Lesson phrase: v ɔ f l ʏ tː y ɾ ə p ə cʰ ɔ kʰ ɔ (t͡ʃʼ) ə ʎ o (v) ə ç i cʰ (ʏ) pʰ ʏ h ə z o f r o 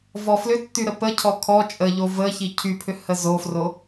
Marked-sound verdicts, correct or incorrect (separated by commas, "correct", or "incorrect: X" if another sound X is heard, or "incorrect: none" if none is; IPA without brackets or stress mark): correct, correct, incorrect: y